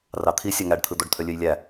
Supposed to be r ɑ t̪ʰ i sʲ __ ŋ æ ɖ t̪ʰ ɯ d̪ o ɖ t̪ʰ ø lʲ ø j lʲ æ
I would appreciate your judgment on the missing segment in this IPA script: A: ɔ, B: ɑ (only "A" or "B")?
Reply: B